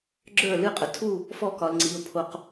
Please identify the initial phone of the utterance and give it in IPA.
ɡ͡ǁ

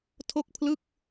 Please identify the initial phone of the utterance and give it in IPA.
tʰ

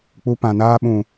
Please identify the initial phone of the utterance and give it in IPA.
k͡p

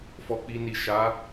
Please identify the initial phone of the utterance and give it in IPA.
f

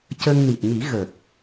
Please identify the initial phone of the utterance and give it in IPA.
c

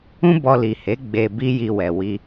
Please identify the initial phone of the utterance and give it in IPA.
ũ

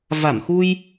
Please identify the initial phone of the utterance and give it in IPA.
v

